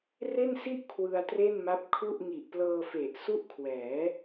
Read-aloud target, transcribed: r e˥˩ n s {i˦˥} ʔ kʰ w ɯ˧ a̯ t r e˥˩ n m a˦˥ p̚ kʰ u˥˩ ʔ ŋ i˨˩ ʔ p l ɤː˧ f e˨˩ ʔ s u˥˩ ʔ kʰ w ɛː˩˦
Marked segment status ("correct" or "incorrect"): incorrect